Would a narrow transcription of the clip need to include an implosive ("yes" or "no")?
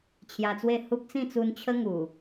no